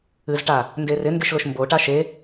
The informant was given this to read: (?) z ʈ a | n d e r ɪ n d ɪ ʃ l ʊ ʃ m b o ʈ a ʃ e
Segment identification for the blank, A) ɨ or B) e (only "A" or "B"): A